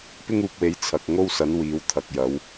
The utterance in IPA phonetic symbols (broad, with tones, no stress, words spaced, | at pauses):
pɪ˥ŋuː˨p̚we˨˥j t͡sʰɐ˨k̚ŋo˥wsɐ˨˥n wiː˨˧wt̪ʰɐ˨k̚jɐ˨˥w